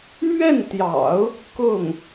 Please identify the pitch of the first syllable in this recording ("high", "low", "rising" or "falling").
falling